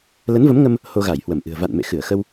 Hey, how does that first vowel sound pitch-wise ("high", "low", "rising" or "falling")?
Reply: rising